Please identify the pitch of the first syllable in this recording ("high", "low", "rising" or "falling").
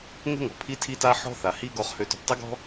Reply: high